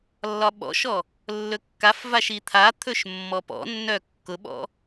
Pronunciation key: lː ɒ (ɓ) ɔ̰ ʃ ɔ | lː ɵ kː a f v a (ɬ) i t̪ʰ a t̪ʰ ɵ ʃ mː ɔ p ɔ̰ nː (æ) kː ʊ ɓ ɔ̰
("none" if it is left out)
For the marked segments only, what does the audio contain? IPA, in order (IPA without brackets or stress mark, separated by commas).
ɓ, ʃ, œ